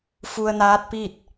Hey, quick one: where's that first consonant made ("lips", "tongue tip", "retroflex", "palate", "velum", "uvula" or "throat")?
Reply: lips